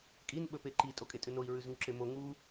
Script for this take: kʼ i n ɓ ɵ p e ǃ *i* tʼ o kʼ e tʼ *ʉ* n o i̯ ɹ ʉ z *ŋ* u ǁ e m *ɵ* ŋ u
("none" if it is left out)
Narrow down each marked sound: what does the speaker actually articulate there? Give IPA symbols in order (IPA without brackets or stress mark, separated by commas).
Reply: i, ʉ, ŋ, o